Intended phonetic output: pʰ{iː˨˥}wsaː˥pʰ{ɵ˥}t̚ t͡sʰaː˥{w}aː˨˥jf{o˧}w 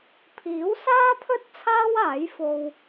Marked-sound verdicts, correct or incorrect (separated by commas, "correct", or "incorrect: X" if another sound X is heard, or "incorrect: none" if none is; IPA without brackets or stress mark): correct, correct, correct, correct